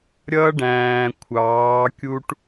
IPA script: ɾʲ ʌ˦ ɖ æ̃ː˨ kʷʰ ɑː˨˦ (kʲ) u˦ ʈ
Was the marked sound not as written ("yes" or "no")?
no